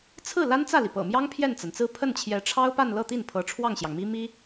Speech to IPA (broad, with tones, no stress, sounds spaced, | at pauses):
t͡sʰ ɹ̩˥˩ l a˥ n t͡s ä˥˩ l i˩ p ɤ̰˨˩ m j ɑ˥ ŋ pʰ j ɛ˥˩ n t͡s a˩ n t͡s ɹ̩˥˧ pʰ ə˥˩ n t͡ɕʰ j ɛ˧˥ ʈ͡ʂʰ ɑ˥ ʊ̯ p a˥˧ n l ɤ˥˧ t̪ i˥˩ n pʰ ɤ˧˥ ʈ͡ʂʰ w ɑ˥˩ ŋ ɕ j ɑ˩ ŋ m i˥ m i˥